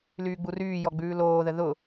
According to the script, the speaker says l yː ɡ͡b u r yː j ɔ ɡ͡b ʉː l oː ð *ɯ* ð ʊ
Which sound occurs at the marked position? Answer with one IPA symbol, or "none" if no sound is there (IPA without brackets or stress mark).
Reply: ə